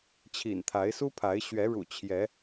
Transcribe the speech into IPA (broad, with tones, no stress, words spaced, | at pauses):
t͡ɕʰḭ˨˩nt̪ʰa˨˦ɪ̯su˦pʰa˨˦ɪ̯ ɕɥɛ˨˦ɻṵ˨˩t͡ɕʰjɛ˨˦